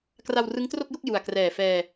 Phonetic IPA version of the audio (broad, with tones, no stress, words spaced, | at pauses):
kra˧wrɯ˦˥ŋtro˥˩k̚jo˥˩k̚ ju˨˩a̯krɛː˨˩fɛː˧